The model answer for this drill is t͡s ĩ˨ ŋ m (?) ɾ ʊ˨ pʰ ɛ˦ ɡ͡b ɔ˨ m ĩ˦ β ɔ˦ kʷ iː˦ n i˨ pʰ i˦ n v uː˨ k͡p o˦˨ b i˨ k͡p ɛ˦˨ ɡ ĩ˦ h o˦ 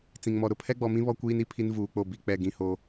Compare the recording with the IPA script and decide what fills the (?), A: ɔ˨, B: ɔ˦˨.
A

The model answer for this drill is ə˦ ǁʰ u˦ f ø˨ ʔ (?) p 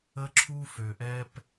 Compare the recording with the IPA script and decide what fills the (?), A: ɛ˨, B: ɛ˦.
B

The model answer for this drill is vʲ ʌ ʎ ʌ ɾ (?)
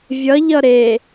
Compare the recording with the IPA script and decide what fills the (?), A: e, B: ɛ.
A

